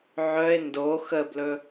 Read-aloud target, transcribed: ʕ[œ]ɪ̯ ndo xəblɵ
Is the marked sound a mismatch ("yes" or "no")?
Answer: no